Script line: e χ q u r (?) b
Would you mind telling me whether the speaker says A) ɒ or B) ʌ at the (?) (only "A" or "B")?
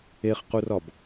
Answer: A